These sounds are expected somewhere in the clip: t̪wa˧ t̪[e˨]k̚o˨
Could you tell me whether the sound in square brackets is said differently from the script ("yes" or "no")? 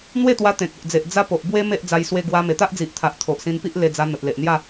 yes